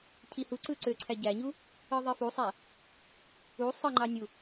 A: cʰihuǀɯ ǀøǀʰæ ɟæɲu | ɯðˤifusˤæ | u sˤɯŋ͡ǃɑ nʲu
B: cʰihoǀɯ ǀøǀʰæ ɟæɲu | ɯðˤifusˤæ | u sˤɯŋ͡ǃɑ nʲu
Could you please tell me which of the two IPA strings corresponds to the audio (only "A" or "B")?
A